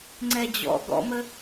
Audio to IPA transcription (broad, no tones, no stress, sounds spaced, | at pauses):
ŋ͡ǀ ɛ d͡ʑ ɔ̰ ɡ ɔ̰ m ə